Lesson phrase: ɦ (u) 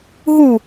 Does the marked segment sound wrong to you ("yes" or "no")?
no